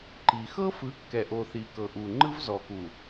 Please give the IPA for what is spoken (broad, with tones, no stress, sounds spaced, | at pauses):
ǃ i˨ x ɤ˦ f ɯ˨˦ kː ɛ˨ ʔ o˨ θ i˨ k ɤ˨ ʔ u˨ ŋ͡ǃ ɯ˦ v z ɔ˨ k u˨